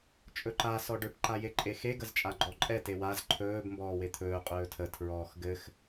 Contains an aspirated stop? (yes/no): yes